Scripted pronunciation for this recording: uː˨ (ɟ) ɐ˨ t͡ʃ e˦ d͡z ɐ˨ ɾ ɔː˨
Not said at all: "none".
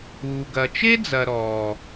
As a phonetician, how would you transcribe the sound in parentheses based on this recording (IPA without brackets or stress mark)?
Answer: ɡ